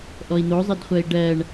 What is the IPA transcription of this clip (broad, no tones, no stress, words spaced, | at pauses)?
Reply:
ʔɔi̯n̪ozˤɘdχʷɜi̯ ɖɜɳ